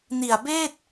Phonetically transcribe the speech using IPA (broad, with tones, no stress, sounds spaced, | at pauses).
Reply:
n i˨˩ a̯ b eː˥˩ t̚